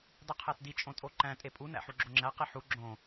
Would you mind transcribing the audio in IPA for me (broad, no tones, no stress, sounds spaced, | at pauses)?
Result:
dˤ i qʰ æ t d i t͡ʃʼ õ tʼ o ǃ æ̃ tʼ e pʼ u n æ̰ ħ u ɡ͡ǁ o ŋ͡ǁ æ q i ħ u ɡ͡ǁ õ